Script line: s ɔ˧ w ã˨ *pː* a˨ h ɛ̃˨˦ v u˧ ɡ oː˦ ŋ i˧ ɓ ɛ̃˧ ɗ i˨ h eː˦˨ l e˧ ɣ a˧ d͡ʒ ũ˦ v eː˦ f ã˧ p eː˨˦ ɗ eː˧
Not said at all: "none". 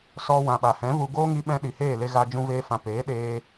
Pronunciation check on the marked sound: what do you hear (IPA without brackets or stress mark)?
ɓ